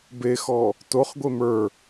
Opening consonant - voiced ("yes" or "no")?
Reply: yes